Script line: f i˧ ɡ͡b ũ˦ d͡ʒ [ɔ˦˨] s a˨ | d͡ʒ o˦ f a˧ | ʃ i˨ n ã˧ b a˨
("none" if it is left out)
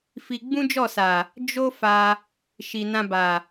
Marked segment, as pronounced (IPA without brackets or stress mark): ɔ˦˨